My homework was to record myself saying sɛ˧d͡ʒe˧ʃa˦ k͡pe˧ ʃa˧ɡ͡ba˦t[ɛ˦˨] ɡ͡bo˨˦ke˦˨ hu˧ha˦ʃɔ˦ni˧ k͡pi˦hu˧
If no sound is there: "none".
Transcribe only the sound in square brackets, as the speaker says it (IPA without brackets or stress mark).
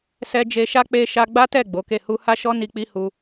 ɛ˦˨